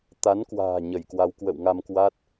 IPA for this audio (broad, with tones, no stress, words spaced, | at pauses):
t̪a˨˦nkwa̤ː˨˩ ɲə˧˩jkwa˨˦wkwə̰˧˨w ŋa˧mkwa˦˥t̚